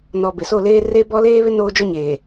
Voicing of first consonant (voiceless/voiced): voiced